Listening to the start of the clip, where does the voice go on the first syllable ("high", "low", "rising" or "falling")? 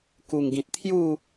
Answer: low